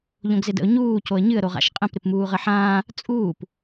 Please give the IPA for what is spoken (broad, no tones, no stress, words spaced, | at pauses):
ʎõɡzɪdə̰ʊ̯ ɲuː coə̯ɲɨə̯ ɾoʁa̰ʃqʼə̃p ɾɪpmuːʁəħãː | t͡sʼuːp